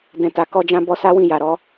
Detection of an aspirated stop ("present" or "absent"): absent